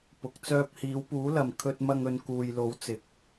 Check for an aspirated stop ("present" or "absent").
present